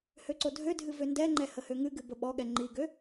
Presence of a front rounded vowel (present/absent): present